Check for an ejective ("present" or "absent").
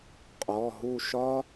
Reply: present